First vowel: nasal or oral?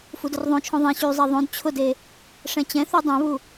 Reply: oral